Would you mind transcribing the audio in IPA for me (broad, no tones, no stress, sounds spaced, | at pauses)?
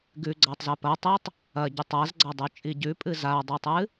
ɡ ʉ ɡ͡ǀ a tˤ z ɐ p ɐ tˤ ɨ tˤ | ɐ ɟ ʉ tˤ a z ɡ͡ǀ a dˤ ʉ t͡ʃʼ i ɟ ʉ pʼ ɨ z a dˤ ʉ tˤ ɨ